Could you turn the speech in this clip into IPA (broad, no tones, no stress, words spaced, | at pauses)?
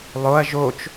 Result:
lˠoɐ̯ ʒot͡ʃ